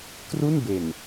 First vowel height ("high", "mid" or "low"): high